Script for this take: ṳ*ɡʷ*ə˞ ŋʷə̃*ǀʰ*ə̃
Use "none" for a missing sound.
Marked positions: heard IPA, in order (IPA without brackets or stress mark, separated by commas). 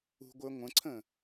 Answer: ɡʷ, ǀʰ